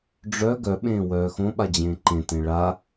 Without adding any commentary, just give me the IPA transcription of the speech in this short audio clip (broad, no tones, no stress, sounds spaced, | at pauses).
ɖ͡ʐ œ ɡ œ ɓ ẽː w œː x õ ɓ a d͡ʑ ẽː ǃ ẽ t ẽ ɭ a